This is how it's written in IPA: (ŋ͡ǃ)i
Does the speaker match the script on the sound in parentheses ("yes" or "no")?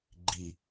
no